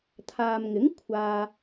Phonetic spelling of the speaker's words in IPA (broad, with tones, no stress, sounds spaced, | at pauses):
t̪ʰ aː˨ m ŋ ɪ˨˥ ŋ kʷʰ aː˨